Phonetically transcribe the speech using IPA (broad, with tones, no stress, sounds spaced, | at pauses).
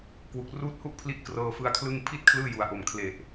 k w u˨˩ k̚ r uː˥˩ t̚ h u˥˩ ʔ pʰ l i˦˥ ʔ k r ɤː˧ f ɯ˦˥ a̯ kʰ l ɯ˥˩ ŋ pʰ i˥˩ t̚ kʰ l ɯː˥˩ j u˩˦ a̯ ʔ o˨˩ m kʰ l e˨˩ ʔ